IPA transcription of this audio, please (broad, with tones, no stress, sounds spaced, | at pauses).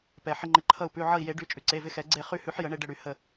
p ɛ˩ ħ ɪ˧ ŋ͡ǃ ɪ˩˧˩ ǃʰ ʌ˧˩ u̯ p ʉ˩˧˩ ʕ ʌ˧˩ i̯ j e˨˩˦ ɖ y˩˧˩ t͡ʃʼ ʉ˩ ǀ e˩˧˩ v ɪ˧ x ɛ˨˩˦ ɡ͡ǀ e˧˩ χ y˧ h ʉ˨˩˦ ħ j ə˨˩˦ ɳ e˧ ɖ ə˧˩ ɽ y˨˩˦ h ə˧˩